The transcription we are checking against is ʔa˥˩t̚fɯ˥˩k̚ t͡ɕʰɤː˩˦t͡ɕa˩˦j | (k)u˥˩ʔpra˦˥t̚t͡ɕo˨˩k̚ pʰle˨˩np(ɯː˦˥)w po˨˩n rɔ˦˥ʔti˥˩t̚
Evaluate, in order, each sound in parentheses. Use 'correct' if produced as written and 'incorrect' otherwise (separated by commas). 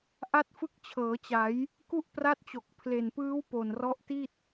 correct, correct